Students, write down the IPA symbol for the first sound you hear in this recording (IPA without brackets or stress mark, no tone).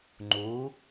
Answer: ŋ͡ǃ